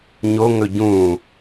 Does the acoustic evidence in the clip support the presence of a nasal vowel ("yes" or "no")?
yes